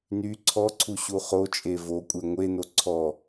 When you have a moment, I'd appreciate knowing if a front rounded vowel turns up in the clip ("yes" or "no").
yes